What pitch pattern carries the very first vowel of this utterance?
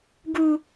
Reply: high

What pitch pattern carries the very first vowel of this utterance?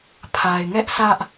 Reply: low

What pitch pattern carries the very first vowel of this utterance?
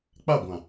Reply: falling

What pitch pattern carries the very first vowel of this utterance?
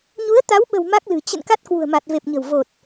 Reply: rising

